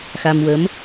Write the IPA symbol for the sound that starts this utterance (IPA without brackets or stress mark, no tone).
x